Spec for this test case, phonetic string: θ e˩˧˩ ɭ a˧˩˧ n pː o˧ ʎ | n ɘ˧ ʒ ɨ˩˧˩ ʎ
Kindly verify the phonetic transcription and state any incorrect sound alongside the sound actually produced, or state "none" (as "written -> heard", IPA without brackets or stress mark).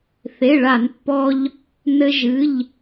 o˧ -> ɔ˧